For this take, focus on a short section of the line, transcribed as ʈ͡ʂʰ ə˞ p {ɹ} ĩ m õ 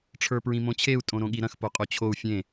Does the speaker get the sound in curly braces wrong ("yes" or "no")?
no